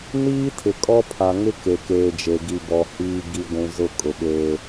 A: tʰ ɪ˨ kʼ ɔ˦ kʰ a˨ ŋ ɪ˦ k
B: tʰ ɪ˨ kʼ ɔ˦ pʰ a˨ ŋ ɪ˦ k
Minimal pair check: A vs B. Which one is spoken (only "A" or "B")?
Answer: B